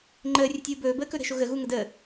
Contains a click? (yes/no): yes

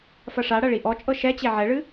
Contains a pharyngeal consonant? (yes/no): yes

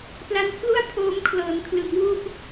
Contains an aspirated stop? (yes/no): yes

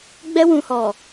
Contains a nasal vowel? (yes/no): yes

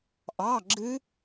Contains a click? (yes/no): yes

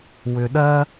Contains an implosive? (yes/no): yes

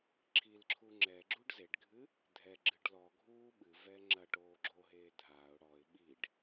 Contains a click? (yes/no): yes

